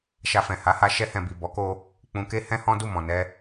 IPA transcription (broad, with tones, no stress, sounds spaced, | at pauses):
ʃ a˧ f ɛ̃˨ h a˨˦ h a˧ ʃ ɛ˧ h ɛ̃˨ b i˨ b ɔ˨˦ k o˧ | k͡p ũ˧ k e˦ h ɛ̃˦ h ɔ̃˦ d u˦˨ m ɔ̃˨ n ɛ˧